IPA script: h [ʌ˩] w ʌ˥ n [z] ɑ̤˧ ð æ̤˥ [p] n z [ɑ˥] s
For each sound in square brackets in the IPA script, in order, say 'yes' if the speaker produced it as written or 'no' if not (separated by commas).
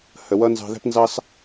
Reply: no, yes, yes, yes